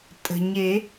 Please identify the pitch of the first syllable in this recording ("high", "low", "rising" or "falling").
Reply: low